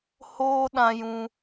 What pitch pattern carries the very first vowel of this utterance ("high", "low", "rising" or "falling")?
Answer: high